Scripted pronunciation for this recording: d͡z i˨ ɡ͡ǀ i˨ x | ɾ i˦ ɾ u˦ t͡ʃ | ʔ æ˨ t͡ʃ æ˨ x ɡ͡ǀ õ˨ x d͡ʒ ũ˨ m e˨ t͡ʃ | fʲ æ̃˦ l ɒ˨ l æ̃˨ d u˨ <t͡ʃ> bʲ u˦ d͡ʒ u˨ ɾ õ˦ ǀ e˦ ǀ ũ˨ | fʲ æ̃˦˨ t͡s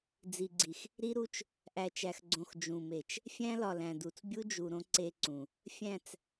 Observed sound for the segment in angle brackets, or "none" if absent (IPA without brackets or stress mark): t͡s